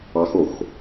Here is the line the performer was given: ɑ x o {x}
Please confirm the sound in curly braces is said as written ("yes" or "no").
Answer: yes